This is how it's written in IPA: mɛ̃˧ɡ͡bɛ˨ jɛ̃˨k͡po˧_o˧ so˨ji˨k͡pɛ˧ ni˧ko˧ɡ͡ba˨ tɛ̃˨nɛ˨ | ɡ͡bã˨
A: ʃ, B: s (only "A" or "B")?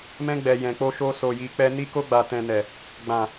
A